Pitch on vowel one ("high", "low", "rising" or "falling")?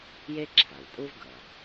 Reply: high